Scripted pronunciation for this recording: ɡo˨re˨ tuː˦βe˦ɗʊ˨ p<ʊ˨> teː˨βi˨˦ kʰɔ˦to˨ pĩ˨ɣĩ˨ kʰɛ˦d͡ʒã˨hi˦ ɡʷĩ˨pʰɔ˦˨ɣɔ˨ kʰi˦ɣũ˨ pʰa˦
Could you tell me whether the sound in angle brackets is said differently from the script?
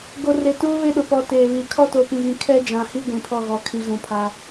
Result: yes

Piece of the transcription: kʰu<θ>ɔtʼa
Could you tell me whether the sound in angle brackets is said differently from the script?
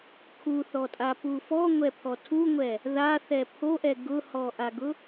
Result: no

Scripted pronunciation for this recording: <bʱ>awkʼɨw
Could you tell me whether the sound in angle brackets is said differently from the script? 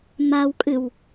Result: yes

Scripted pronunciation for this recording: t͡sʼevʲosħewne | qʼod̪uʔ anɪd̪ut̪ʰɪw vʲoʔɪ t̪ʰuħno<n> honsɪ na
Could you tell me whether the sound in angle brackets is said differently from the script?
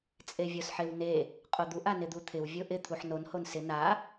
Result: no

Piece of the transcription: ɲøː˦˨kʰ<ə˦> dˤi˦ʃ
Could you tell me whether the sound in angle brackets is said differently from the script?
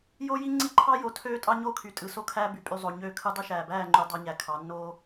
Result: yes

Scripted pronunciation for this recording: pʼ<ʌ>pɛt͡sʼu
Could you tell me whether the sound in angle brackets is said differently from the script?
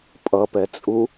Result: no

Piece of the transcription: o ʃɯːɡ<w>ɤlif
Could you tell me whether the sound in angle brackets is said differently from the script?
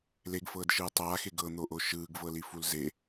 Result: yes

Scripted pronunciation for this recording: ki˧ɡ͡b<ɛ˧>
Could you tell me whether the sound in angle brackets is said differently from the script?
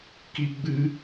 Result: yes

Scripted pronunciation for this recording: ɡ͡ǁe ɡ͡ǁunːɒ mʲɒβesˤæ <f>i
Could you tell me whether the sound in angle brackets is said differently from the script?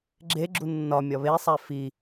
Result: no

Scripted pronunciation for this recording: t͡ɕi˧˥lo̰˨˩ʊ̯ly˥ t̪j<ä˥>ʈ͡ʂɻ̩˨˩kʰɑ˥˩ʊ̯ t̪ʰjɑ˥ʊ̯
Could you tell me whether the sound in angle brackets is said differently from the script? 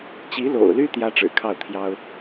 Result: no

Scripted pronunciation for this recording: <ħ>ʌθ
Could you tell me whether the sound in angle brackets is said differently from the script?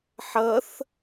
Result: no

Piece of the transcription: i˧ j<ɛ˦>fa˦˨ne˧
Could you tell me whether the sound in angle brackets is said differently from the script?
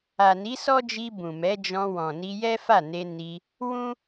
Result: no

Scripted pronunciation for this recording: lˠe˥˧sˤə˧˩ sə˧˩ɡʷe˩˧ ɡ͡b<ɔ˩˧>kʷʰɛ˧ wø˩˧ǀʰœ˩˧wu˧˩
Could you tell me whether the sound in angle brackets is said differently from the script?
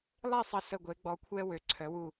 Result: no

